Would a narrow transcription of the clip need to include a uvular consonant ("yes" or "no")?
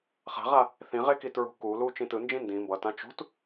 yes